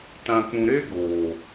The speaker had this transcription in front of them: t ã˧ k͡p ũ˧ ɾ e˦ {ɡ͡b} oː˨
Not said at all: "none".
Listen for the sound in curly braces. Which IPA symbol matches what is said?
ɡ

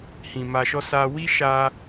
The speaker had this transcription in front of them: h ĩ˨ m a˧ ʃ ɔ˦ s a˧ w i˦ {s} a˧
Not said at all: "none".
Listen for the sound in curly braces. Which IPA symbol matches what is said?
ʃ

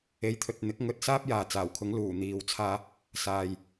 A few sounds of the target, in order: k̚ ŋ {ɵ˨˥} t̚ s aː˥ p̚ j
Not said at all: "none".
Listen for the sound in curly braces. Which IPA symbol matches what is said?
ɵ˨˥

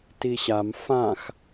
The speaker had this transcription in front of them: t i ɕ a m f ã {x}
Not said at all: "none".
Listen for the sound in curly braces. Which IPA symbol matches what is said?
x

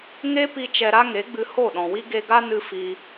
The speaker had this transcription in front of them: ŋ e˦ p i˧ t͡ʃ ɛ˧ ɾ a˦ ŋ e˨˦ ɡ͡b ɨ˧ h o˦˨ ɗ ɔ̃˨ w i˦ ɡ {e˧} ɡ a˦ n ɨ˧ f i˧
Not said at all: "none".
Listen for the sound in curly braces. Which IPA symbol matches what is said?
e˧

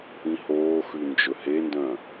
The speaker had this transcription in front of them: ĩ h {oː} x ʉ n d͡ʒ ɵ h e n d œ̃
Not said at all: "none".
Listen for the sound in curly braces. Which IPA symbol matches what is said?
oː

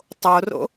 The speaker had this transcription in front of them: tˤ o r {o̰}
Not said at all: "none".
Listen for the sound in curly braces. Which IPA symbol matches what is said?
o̰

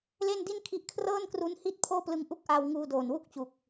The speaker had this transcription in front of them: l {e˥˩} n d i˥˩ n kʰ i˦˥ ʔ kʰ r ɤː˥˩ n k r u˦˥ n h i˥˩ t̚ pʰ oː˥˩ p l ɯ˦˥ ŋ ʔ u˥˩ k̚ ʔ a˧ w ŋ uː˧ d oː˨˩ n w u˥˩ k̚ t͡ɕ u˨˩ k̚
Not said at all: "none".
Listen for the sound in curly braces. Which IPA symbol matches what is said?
e˥˩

